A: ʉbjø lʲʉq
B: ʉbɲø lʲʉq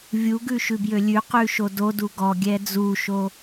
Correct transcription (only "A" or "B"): A